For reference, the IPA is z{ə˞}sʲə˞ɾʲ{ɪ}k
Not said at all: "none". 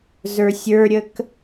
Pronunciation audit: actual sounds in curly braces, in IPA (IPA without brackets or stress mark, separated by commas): ə˞, ə